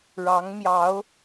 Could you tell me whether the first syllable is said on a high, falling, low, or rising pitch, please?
rising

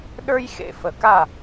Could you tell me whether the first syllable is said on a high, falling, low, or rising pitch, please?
high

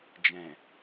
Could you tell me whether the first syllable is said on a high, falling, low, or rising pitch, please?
low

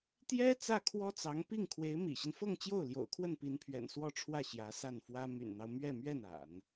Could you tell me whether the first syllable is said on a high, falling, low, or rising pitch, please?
high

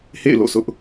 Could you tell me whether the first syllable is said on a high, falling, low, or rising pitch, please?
falling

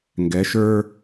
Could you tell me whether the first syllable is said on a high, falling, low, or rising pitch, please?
rising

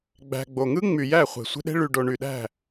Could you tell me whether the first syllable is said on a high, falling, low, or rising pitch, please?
low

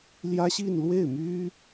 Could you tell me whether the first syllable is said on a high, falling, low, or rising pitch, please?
high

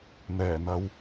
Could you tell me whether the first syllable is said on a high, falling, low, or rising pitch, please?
low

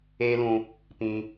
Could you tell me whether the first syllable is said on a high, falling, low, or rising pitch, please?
high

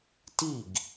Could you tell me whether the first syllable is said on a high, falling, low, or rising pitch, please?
falling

